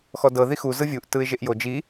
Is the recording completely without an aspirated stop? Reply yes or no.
yes